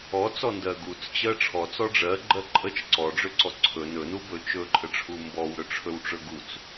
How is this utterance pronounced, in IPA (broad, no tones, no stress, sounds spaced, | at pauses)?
ɔ t͡s ɔ n d ɜ ɡ u t͡s t͡ɕ ɜ ʈ͡ʂʰ ɔ t͡s ɔ ɖ͡ʐ ɜ ɡ͡ǃ ɜ ǃʼ ə t͡ʃ ǀ ɔ ɖ͡ʐ ø ǀ ɔ ǀʰ ɵ n ɵ n u b ɵ t͡ʃ ɵ ǃʼ ə ʈ͡ʂʰ u m b ɔ w ɾ ɵ ʈ͡ʂʰ ɵ w ʈ͡ʂ ɵ ɡ u t͡s